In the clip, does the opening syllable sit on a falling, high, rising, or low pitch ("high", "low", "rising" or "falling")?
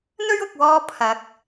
high